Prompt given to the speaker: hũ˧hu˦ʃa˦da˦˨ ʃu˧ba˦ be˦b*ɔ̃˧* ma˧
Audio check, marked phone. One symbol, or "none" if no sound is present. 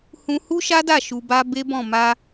ɔ̃˦˨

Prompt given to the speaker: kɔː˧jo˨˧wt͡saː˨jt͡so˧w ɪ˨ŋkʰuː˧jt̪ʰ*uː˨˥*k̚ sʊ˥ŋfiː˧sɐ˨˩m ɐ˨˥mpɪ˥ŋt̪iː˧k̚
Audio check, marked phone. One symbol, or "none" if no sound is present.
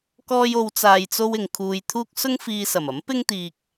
uː˥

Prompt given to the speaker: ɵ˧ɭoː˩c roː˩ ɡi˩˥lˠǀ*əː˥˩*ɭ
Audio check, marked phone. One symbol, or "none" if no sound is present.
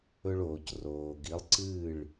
ɨː˥˩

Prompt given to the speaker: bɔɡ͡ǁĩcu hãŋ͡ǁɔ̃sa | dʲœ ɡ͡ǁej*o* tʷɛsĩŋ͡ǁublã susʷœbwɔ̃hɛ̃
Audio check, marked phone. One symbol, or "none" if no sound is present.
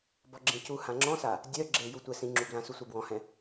u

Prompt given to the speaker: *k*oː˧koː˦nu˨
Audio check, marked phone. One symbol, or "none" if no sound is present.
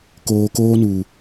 k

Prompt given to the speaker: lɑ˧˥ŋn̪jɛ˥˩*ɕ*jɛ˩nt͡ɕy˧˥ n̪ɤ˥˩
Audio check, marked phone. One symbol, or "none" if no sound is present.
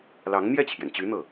t͡ɕʰ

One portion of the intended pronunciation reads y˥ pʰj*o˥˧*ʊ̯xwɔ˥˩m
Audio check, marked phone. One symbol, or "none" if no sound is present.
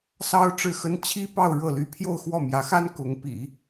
o˥˧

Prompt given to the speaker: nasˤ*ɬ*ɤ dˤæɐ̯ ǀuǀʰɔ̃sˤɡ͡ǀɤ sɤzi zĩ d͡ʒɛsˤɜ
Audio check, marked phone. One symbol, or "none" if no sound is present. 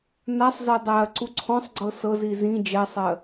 z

